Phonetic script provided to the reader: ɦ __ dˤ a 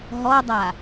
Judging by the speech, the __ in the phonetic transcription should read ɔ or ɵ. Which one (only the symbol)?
ɔ